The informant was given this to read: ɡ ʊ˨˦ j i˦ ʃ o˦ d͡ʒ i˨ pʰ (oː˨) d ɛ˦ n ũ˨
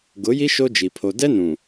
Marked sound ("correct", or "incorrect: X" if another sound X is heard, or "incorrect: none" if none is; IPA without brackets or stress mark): incorrect: o˨